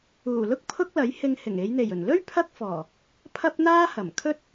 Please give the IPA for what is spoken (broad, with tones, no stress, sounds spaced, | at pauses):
uː˨˩ l ʊ˥ k̚ pʰ ʊ˥ k̚ l ɐ˨˥ j h ɪ˧ ŋ h ɪ˨˩ ŋ e˨˧ j n̪ e˨˩ j ɵ˨˩ n l ɵ˥ ɥ pʰ ɐ˥ k̚ f ɔː˨˩ | pʰ ɐ˥ p̚ n̪ aː˥ h ɐ˨˩ m kʰ ɵ˥ t̚